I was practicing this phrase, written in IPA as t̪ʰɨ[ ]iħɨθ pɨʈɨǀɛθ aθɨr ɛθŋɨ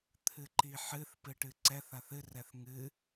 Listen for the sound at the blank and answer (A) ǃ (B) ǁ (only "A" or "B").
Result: A